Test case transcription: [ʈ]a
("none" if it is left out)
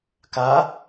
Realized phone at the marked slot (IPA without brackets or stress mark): k